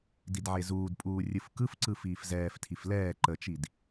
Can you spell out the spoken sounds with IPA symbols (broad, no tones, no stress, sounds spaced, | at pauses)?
d i d ʕ e z uː d pʼ uː rʲ ɯ f k ɯ f ǀ ɯ f iː f z ɛː f tʰ i f l ɛː ǃ ə t͡ʃ i d